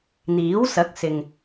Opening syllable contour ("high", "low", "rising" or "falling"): rising